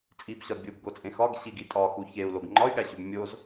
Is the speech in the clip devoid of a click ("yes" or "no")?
no